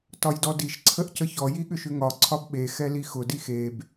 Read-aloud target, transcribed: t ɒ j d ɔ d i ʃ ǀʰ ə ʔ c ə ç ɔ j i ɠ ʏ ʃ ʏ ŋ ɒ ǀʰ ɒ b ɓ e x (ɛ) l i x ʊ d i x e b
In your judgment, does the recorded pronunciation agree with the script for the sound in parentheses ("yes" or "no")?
yes